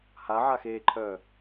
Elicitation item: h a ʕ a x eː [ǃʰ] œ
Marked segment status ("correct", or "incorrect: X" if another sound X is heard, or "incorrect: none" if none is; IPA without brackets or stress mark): correct